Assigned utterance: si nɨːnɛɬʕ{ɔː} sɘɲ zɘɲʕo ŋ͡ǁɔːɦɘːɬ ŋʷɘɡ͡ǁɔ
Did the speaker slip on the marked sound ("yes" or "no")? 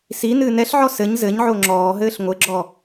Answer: yes